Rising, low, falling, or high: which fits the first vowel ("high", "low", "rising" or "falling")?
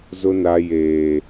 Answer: high